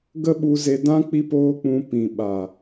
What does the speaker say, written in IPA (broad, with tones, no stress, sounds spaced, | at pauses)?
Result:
ɡ ə˦ ɓ u˧ z e˧ d ã˦ k͡p i˦ p oː˦ k͡p ũ˧ p ĩ˨ ɓ a˨